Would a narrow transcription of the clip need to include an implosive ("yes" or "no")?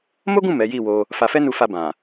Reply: no